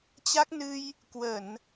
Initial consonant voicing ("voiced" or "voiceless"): voiceless